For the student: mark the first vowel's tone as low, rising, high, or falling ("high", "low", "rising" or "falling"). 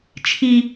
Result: high